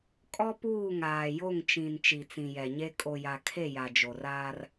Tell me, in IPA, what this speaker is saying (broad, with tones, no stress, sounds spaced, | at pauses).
kʼ ɔ˦ p uː˦˨ ŋ aː˨ j o˦˨ ŋ t͡ʃ ĩ˨ n t͡ʃ i˨ t͡s ĩ˨ j ɛ˨ ɲ e˦ kʼ o˨ j a˨ kʰ e˦˨ j a˨ d͡ʒ o˨ r aː˦ r